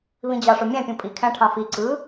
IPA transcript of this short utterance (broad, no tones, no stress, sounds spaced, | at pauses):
β ĩ d͡ʑ ɑ ʂ o mʲ æ̃ pʲ ũ pʼ i kʰ æ̃ ʈʰ ɑ̃ f i ǀ ɯ